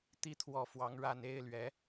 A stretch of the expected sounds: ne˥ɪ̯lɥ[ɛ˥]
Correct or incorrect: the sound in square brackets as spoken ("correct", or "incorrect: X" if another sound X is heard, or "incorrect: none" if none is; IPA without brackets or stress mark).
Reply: incorrect: ɛ˧˥